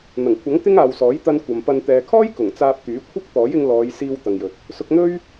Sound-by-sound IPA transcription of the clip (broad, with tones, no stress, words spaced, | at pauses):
n̪ɐ˨˩ŋkʷʰɐ˨˥ŋ t̪ɪ˥ŋ aː˨wsɔː˨˥jt̪ɐ˧n kʷɐ˨mpɐ˧n t̪ɛː˨kʰɔː˥j kʊ˨˩ŋt͡saː˧p̚t̪yː˨˥ kʷʰɪ˥k̚t̪ɔː˨˥jɪ˧ŋ lɔː˨˧j siː˧w t̪ɐ˨ŋjɵ˨t̚ | sʊ˧k̚n̪ɵ˥ɥ